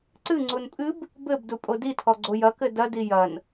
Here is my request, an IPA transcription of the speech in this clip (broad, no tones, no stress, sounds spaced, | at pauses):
ǀ ɨ ŋ͡ǀ u n pʼ ɨ b | b ɘ b d u pʼ o d i tʰ ɔ ɡ͡ǀ o j ɐ k ɘ d ɐ d i j ɐ n